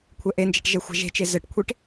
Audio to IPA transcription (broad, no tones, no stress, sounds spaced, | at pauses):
kʷʰ ɛ ʔ e n d͡ʒ ɛ̤ ʈ ʒ ɛ xʷ a̤ ʒ e̤ t͡ʃ e z ɘ ʈ kʷʰ e ʈ